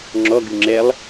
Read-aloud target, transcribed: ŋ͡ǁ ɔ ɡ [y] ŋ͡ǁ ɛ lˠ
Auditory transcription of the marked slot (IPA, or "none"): y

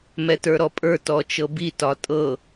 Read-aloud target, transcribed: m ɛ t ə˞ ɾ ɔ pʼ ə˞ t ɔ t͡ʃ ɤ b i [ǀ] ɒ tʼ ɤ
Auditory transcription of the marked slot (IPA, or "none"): t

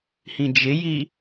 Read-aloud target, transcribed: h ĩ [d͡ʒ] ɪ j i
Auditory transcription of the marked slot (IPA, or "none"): d͡ʒ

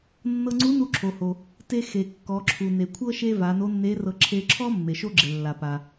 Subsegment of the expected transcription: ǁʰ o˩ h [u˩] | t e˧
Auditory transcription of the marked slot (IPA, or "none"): o˩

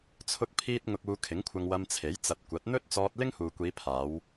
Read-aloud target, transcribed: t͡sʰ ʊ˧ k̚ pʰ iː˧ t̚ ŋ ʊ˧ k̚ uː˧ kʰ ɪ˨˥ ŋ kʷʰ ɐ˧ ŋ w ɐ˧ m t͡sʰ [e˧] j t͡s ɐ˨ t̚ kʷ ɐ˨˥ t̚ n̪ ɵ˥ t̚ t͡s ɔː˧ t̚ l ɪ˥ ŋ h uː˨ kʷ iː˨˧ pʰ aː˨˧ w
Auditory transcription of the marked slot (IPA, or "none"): e˨˥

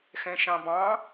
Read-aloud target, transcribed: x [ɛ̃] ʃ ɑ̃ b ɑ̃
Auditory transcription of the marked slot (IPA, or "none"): ɛ̃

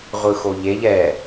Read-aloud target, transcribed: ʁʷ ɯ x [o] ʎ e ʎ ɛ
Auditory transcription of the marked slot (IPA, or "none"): o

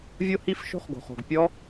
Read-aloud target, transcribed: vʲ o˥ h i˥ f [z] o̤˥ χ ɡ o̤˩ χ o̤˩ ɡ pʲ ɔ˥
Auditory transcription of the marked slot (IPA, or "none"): ʃ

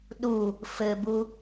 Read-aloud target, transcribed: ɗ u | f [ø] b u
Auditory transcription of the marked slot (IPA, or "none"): ɘ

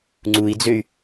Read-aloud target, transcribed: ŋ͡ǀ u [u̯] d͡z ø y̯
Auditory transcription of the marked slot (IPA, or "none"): i̯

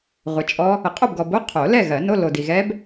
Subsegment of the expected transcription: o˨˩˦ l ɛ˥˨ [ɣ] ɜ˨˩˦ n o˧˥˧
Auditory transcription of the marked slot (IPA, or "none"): ɣ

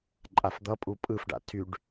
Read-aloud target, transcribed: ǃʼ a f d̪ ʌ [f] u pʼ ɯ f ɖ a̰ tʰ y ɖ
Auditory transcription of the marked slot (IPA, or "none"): pʼ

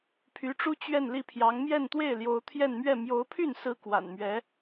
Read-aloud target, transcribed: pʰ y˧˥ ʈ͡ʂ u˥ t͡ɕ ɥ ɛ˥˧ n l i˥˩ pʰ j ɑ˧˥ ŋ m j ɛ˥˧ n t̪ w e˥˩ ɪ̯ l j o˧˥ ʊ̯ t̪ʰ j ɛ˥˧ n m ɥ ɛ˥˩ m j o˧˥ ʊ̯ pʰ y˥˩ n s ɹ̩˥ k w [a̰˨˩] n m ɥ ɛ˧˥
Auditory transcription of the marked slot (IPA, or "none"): a̰˨˩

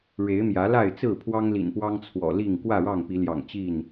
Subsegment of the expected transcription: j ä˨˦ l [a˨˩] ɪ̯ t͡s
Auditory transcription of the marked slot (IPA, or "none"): a˥˨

